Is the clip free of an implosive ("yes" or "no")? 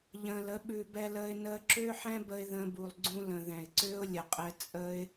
no